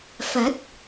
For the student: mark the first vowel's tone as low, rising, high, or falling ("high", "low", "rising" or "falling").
rising